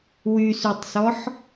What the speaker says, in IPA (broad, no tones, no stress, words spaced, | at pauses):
wysytˤsɔħ